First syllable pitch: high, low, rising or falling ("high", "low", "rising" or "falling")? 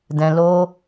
low